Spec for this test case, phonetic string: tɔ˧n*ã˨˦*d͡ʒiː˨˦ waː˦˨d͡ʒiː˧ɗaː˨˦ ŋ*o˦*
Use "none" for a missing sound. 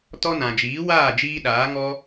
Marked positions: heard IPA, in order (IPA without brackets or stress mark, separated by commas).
ã˨, ɔ˦